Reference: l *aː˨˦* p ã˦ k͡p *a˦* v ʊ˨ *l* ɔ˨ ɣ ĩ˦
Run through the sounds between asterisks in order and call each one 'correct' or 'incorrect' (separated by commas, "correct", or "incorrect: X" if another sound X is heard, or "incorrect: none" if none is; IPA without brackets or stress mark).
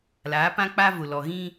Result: correct, correct, correct